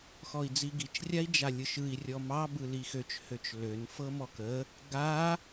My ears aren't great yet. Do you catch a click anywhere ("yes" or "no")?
no